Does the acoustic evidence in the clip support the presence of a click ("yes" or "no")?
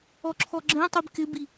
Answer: yes